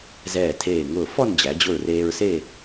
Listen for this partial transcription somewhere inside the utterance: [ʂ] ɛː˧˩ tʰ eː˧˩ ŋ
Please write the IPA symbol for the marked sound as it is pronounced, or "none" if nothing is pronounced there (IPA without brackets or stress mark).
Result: z